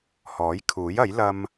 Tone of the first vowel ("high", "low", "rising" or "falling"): rising